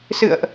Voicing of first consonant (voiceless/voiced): voiceless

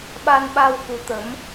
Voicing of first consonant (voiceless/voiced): voiced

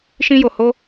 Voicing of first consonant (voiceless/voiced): voiceless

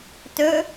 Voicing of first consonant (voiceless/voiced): voiceless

